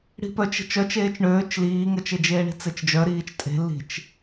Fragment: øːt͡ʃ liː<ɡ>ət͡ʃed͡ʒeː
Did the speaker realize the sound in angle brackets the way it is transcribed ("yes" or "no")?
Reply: no